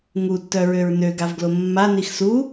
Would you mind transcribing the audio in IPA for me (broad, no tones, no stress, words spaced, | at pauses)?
ŋutːœɹøɹ nøɡavɡlo mːanix su